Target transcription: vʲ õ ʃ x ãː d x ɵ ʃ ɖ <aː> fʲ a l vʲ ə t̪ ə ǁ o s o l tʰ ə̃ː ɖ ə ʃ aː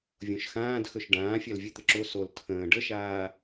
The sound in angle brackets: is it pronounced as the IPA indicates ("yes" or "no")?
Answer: no